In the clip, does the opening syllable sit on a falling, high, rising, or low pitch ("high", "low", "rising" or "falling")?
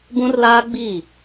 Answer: high